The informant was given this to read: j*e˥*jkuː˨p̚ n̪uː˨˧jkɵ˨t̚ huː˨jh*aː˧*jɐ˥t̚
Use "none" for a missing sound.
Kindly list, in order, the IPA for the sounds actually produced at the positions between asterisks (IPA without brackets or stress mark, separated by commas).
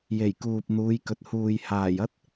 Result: e˨˩, aː˨˩